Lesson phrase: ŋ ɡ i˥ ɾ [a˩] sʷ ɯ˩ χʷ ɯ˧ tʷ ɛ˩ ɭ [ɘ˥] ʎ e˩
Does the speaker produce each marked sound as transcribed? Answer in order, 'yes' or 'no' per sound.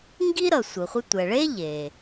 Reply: no, no

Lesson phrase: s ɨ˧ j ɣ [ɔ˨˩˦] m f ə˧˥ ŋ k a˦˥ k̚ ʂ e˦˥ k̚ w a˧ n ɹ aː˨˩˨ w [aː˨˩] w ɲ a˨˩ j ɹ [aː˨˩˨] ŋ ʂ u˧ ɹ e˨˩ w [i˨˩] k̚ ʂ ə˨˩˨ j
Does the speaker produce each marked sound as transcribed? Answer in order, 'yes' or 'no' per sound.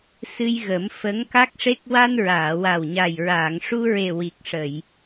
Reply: no, no, yes, yes

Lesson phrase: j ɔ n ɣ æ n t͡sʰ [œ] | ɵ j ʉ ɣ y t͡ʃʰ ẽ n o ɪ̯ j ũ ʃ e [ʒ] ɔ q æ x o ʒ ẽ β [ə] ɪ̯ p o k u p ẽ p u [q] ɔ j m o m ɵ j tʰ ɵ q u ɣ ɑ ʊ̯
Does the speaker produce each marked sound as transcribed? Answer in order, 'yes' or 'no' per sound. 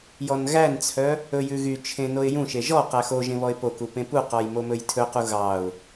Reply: yes, yes, no, yes

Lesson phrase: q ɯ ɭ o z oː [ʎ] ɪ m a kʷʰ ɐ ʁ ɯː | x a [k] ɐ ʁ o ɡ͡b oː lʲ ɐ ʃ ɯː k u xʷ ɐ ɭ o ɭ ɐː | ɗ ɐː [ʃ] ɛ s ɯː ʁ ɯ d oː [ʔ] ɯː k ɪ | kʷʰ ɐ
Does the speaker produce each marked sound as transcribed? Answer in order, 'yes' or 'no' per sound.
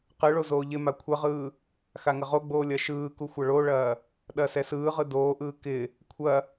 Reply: yes, no, no, yes

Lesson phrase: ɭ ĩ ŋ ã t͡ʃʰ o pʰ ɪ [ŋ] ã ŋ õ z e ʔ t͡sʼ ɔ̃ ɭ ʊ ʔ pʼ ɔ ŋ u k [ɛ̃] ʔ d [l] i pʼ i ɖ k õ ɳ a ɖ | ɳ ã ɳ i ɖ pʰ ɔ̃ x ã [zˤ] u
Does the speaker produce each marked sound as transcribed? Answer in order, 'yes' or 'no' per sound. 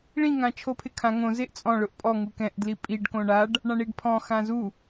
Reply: no, yes, yes, no

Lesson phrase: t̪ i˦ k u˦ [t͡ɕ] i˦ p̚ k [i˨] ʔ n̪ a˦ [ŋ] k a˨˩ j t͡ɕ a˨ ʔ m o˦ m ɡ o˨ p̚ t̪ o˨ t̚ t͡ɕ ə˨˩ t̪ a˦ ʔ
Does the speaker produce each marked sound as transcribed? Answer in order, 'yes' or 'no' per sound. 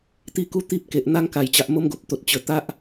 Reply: no, no, yes

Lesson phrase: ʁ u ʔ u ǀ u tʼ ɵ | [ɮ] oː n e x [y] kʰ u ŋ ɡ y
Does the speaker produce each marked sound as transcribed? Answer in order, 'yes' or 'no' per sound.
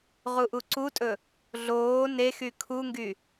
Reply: yes, yes

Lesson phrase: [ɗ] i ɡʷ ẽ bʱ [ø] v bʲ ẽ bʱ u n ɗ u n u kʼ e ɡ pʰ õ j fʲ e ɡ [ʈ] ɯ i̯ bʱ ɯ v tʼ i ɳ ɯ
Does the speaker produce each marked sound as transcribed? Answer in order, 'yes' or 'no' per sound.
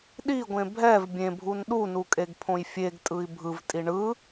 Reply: yes, no, no

